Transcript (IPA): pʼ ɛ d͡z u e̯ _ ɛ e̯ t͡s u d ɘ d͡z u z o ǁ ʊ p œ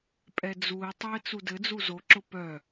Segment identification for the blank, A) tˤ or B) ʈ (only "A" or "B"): A